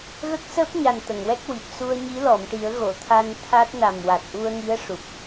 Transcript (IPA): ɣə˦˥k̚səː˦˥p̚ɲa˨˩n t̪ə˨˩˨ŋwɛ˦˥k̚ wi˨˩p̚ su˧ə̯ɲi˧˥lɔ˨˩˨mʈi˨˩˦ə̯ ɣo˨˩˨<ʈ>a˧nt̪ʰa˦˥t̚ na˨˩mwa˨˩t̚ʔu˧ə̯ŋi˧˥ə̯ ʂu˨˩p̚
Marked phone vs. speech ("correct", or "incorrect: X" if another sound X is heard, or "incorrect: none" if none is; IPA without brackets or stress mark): incorrect: t̪ʰ